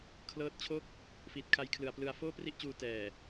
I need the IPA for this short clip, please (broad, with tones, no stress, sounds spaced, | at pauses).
kʰ l ɤː˦˥ t̚ t͡ɕʰ o˥˩ k̚ | f iː˨˩ t̚ kʰ a˧ j kʰ l ɯ˨˩ a̯ p l ɯ˧ a̯ f oː˥˩ p r i˥˩ ʔ t͡ɕ uː˧ t ɛː˨˩